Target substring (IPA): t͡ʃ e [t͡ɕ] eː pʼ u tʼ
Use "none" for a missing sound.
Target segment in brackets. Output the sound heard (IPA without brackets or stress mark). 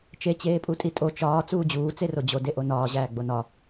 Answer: t͡ɕ